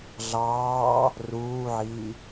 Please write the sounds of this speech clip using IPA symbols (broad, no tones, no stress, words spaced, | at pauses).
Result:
ɮɑː | ruːʕiː